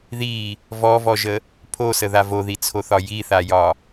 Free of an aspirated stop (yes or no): no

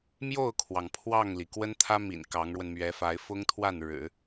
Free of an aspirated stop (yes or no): no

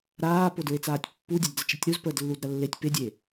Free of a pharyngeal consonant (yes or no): yes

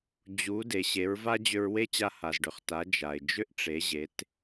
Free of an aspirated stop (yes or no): yes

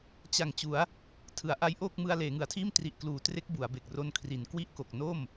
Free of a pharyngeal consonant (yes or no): yes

